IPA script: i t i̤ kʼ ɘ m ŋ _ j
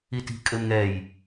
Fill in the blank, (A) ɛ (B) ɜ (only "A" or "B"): A